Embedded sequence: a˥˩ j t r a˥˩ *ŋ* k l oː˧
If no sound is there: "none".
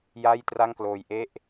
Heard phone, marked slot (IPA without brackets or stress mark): ŋ